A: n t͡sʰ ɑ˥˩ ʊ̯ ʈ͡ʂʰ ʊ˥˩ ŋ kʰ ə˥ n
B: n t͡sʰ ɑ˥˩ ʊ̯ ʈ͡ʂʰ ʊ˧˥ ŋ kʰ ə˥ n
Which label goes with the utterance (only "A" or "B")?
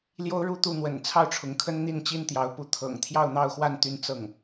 B